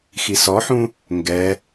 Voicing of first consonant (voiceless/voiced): voiceless